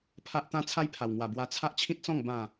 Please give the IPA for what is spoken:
pʰ a˦ ʔ t̪ ã˦ t͡sʰ a˦ j pʰ a˨˩ w ŋ w a˨˩ b w a˧ t͡sʰ a˦ ʔ t͡ɕʰ ĩ˦ t̚ t͡s ɔ̃˥˧ ŋ b ã˥˧

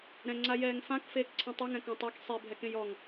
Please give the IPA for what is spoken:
ɾ ɛ̃ ŋ͡ǀ a j ɛː ŋ f ã k f eː k ǀʰ ɛ̃ tˤ e ŋ ɛ̃ k ɔ̃ tˤ e k sˤ e bʱ ɛ k ẽ j ɔ ŋ

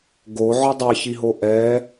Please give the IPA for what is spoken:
ɡ o ʕ ɔ dˤ ɛ ç i ɦ o ʔ ɛ

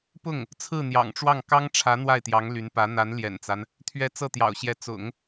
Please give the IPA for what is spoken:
p ʊ˥˩ ŋ | t͡sʰ ɹ̩˥˩ n̪ j ɑ̰˨˩ ŋ ʈ͡ʂ w ɑ˥˩ ŋ k ɑ˥ ŋ ʈ͡ʂʰ ä˧˥ n̪ w a˥˩ ɪ̯ t̪ j ɑ˧˥ ŋ l y˧˥ n p ä˧˥ n̪ a˧˥ n l j ɛ̰˨˩ n t͡s a˦ n | t̪ʰ ɥ ɛ˧˥ t͡s ɤ˥˩ t̪ j ɑ̰˨˩ ʊ̯ ɕ j ɛ˧˥ t͡s ʊ̰˨˩˦ ŋ

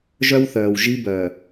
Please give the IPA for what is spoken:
ʒ œ˦ w θ œː˨ w ʒ i˦ b œː˨

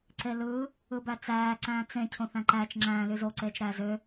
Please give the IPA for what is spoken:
ǀ e l ɯ | ɯ b æ t͡s æː ǀ æ̃ː t͡s ẽ cʰ õ θ æ̃ ǃ æ t͡ʃ ŋ͡ǁ æ̃ l y z o ǀ eː t͡ʃ ɾ æː z ø

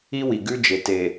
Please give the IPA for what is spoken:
i˦ w i˨ ɡ ʉ˦ d͡ʒ e˨ t e˨

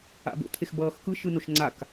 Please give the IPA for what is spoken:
a̰ b o̰ t̪ʰ e x b ʌː x k ɯ ʃ ɯ n o ʃ ŋ͡ǀ a k

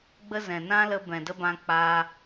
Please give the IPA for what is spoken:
ɡ͡b ə˦ z ɛ̃˨ n ã˦ l ə˧ b ɛ̃˨ d ə˦ b ã˧ k͡p aː˧

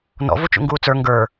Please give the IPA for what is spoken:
n ɔ̰ v u t͡ʃ ṵ ŋ ɡ uː t͡s ə˞ ŋ ɡ ə˞

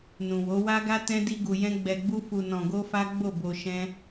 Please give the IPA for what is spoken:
n ũ˨ w o˨˦ w a˦ ɡ a˦ t ɛ̃˦ d i˦ ɡ u˧ j ɛ̃˦ ɡ͡b ɛ˧ ɡ͡b u˦ f u˧ n ɔ̃˧ ɡ o˦ f a˦ ɡ͡b o˦˨ b o˧ ʃ ɛ̃˦

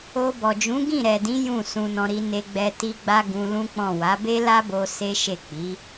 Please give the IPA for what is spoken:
o˧ b ɔ˨ d͡ʒ ũ˨˦ ɡ ĩ˦˨ ɾ ɛ˨ d ĩ˨˦ j ũ˦˨ s ũ˧ n ɔ̃˧ ɾ i˧ n e˧ ɡ͡b ɛ˧ t i˧ ɡ͡b a˦ ɡ ũ˧ l ũ˦ k͡p ɔ̃˦˨ w a˨˦ b e˦ l a˦ b o˧ s e˦ ʃ e˦˨ k͡p i˨˦

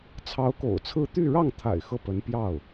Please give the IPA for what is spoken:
t͡sʰ ɑ˧˥ ʊ̯ k o̰˨˩ ʊ̯ t͡sʰ ɹ̩˥˧ t̪ y˥˧ ɻ ɑ˥˩ ŋ t̪ʰ a̰˨˩ ɪ̯ x ɤ˥˩ p ə˧˥ n p j ɑ˥˩ ʊ̯

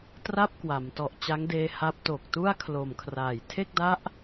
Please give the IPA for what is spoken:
t r a˥˩ p̚ k w a˩˦ m t ɔ˨˩ ʔ t͡ɕ a˦˥ ŋ d eː˧ h a˦˥ p̚ t o˨˩ k̚ t u˥˩ a̯ kʰ l o˨˩ m kʰ r aː˨˩ j tʰ e˥˩ k̚ d a˦˥ ʔ

